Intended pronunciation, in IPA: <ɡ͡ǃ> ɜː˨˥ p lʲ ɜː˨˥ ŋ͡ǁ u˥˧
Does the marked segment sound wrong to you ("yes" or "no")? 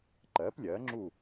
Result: yes